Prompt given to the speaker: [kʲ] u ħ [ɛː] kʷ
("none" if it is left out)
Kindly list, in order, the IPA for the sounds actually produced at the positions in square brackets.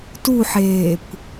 t, eː

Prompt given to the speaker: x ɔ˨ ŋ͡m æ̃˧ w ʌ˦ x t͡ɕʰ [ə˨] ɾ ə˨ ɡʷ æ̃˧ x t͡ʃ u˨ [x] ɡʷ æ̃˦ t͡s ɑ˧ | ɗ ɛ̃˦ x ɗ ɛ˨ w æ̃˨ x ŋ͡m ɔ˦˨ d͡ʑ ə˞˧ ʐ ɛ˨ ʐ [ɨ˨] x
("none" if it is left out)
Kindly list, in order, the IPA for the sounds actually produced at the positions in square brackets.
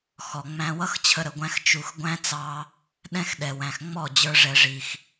ə˧, x, i˨

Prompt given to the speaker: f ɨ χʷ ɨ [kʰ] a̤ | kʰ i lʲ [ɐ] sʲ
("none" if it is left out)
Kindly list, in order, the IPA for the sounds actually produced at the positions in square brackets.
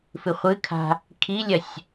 kʰ, ɐ

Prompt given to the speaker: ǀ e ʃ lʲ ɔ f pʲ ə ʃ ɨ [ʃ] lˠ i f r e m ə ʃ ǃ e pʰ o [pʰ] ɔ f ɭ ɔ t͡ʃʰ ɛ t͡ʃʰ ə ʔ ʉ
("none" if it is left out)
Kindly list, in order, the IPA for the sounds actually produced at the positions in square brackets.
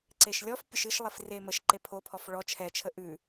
ʃ, pʰ

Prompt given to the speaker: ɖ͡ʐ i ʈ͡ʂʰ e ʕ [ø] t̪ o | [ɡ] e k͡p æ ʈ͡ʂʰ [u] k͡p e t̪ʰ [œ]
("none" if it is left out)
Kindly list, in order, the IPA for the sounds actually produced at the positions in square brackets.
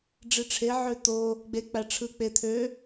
ø, ɡ͡b, ɯ, ø

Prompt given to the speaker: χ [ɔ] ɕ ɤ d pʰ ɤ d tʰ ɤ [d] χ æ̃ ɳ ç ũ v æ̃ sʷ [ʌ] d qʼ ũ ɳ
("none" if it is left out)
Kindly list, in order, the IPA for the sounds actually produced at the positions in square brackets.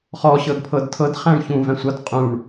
ɔ, d, ʌ

